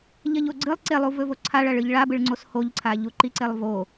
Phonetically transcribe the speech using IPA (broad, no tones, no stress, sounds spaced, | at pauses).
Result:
ʎ ɐ ʎ o ɡ͡ǀ ɨ lˠ ǀ e lˠ u v ɵ v o ǀʰ a ɭ ɐ ɭ ɨ ʎ ɭ a b ɨ ɭ ŋ͡ǀ o s h o ʎ ǀʰ a ʎ u ǃ i ǀ e lˠ v o